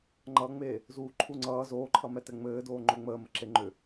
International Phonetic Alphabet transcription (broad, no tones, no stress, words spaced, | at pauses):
ŋ͡ǃʌːŋ͡me | zuːǃʰuŋ͡ǀʌː zoːǃʰʌmɛtɛ ŋ͡mɘːdoː ŋ͡ǃoŋ͡məː məǁeŋ͡ǃʏ